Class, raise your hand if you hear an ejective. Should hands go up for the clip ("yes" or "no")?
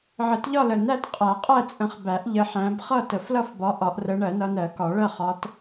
yes